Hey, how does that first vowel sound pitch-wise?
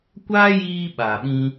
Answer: high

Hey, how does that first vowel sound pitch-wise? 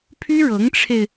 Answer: high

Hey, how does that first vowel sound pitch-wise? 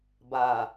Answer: low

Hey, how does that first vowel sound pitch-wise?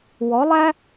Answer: rising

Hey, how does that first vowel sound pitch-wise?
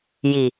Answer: low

